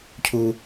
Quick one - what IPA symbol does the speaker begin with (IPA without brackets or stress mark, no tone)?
cʰ